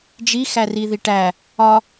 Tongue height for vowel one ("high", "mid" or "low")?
high